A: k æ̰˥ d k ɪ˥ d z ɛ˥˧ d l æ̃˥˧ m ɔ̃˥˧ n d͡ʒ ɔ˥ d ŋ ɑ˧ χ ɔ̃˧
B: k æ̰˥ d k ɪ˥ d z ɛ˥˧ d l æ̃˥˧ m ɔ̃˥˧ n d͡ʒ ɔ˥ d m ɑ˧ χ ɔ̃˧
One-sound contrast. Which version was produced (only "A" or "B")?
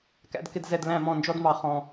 B